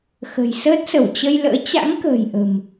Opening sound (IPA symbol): x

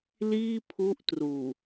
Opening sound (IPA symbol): l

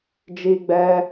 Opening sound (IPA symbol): d͡ʒ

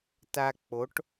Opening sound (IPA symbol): t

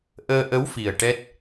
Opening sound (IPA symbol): ʔ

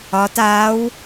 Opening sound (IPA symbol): ɒ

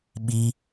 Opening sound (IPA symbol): ɓ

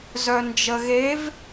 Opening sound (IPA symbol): z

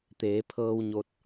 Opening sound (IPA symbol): t̪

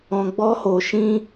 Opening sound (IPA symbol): ɔ̃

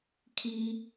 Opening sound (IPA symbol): kʰ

